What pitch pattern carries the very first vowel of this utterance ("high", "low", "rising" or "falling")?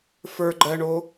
low